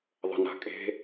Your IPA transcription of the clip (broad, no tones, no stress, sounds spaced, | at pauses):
ðˤ ə̤ n a̤ kʼ e̤